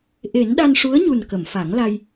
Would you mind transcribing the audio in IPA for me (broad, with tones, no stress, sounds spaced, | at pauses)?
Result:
ʔ e˨˩˦ n ɗ a˧ n ʂ u˧˥ ə̯ ɲ u˨˩ n k ə˨˩˨ m f a˨˩˦ ŋ l a˧ j